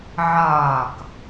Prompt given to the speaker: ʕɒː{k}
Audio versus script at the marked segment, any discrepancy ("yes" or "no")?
no